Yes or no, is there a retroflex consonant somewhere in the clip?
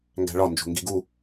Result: yes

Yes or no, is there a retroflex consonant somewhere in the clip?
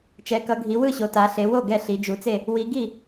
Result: no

